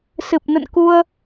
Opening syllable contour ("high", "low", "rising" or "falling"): low